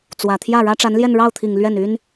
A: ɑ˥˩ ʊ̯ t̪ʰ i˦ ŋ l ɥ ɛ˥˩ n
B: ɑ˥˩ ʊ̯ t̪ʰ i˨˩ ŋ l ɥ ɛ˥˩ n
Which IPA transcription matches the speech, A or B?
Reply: B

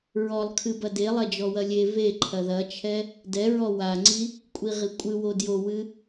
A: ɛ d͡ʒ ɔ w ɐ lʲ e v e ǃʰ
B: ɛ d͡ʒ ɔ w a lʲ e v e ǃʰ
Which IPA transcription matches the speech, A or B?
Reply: A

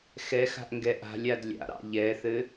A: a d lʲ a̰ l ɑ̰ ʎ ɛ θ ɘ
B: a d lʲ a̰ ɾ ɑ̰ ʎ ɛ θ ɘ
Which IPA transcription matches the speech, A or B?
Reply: B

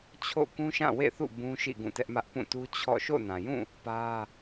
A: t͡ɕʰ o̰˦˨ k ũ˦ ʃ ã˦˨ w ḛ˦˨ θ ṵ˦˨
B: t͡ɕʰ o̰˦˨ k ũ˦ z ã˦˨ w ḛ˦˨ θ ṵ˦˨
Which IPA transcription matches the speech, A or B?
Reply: A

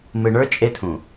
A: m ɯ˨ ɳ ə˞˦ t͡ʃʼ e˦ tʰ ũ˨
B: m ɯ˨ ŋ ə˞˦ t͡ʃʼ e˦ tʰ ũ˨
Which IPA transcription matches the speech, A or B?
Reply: A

